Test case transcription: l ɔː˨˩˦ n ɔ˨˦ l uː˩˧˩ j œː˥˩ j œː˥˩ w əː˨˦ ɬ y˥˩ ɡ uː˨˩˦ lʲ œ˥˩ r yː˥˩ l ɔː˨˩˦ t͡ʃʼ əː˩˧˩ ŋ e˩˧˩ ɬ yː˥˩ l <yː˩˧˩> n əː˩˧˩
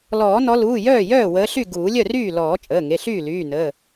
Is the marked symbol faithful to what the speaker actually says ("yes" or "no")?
yes